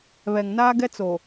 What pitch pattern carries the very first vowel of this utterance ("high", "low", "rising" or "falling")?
low